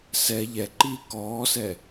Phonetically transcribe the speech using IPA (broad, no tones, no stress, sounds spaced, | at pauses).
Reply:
s ɛ ʎ ɛ ǃ iː k ɔː s ɛ